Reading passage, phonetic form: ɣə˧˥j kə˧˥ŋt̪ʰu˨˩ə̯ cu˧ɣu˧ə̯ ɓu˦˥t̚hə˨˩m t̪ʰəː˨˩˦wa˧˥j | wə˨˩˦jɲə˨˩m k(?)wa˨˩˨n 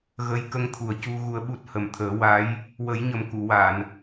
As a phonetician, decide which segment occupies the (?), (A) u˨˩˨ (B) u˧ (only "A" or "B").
A